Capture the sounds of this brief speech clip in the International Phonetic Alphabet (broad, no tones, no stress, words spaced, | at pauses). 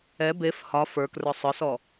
ɛ bef hɒ fə˞krə˞ sˤə˞sɔ